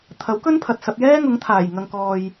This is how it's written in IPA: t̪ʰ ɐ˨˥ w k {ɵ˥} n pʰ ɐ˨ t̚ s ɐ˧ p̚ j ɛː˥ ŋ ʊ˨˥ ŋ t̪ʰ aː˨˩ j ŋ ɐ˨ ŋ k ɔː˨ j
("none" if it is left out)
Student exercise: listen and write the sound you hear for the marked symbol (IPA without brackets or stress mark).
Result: ɵ˥